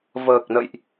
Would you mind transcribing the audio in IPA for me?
vəː˨˩k̚nə̰˧˨jʔ

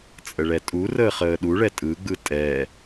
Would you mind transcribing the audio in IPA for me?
t͡sʼəɭɛtʼurəːχ əːɗuɭɛ tʼɯɡ͡bɯ tʼɛ

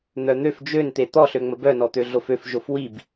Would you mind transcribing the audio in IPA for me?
n̪œn̪øf d͡ʒønt̪e t̪ɔɬøŋ͡mə bœnɔt̪ø ɮoføfʒof wib

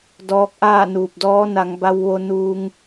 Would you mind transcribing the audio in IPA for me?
dɔː˧k̚ʔaː˥˨ nuː˧˩p̚dɔː˧˥ na˩˧ŋ ba˧w ʋo˧nuː˧ŋ

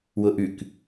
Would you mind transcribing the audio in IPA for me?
wʊʔʉk

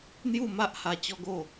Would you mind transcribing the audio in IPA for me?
n̪ju˥˧ma˦ʔha˧ t͡ɕɔ˦ɡo˥˧

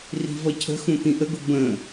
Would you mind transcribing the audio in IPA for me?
ri̤vʌcʰə̤xũ t̪ĩʔəɡʊ bə̃

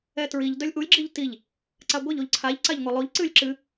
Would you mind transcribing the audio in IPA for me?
ɛtɹiʎ dœlʲʔulʲ ɡ͡ǁiʎtiʎ | ǀaɡʷɛʎ oʎǀʰaʎ ǀaʎŋʷɛlˠoʎ ǀɨlʲǁɨ

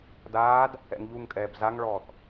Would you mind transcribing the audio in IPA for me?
daːd | ɛ̰ŋʎuŋkʼɛːb zaŋɭɔːθ

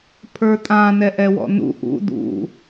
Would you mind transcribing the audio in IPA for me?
pʰə˞tʼã nɛʔɛwɔ̰nṵ ʔṵ dṵ

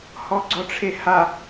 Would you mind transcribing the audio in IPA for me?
hɔɡ͡ǀɔʈ͡ʂʰeha

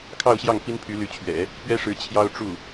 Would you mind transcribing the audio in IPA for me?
kʰɑ˥˧ʊ̯ɕjɑ˥˩ŋ pi˥npʰy˧˥ly˧˥t͡ɕʰɥɛ̰˨˩˦ | pɥɛ˥ʂɻ̩˧˥ t͡ɕʰjɑ˥ʊ̯ʈ͡ʂu˥˩

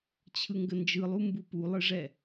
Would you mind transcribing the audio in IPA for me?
t͡ɕʰɯŋɡənd͡ʒɯlˠu mbupulˠɯʐɛ

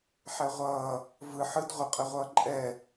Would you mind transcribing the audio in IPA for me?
ħɛʁʷʌː | vɯ ħɯd ʁʷə qʼɛʁʷʌːǃʼɛ

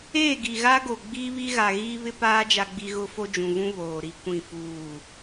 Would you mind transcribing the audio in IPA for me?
eː˦˨ɡi˨ɣa˦ɡo˨ ɡ͡biː˦βi˦ɣa˨ɣiː˦ βɪ˦paː˦ d͡ʒa˦ɡ͡bi˦ ɣʊ˦ fo˦d͡ʒũ˨vũ˦ βoː˨ɾi˦ kʷĩ˦˨fuː˦˨

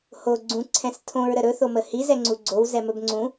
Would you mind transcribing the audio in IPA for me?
ho ɡ͡ǀũ ǀʰɛ̃stʰõɹ ɾəɾɵ θoməhi zɛŋ͡ǀuɡ͡ǀow zɛmɵbŋ͡ǀũ

